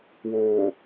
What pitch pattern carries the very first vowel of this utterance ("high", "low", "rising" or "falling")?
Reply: low